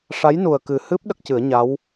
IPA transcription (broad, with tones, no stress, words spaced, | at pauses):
ʂa˧˥jnu˨˩ə̯kɨ˨˩hɨ˦˥p̚ ɗə˦˥k̚cɨ˨˩˦ə̯ ɲa˧˥w